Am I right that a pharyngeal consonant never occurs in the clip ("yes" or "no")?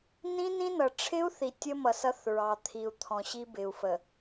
yes